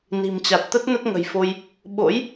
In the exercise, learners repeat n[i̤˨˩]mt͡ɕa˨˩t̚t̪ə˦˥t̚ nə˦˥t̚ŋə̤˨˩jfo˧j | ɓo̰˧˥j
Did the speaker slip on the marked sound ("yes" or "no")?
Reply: no